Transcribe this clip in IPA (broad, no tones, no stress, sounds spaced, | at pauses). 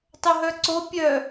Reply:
tˤ o ɦ œ ǀ o pʲ œ